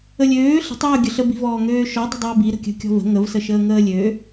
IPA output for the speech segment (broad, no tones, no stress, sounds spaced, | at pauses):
ə lʲ øː ɬ ə̤ tˤ j ʏ ʊ̯ ɡʲ ə ɬ ə b i̤ v ɔː ŋ øː ʃ ɔ dˤ ə̤ dˤ ʏː b i ɾ ə̤ kʲ ə̤ kʲ ɔ̤ v ə̤ ŋ ə v s ə ʃ əː ŋ əː lʲ ø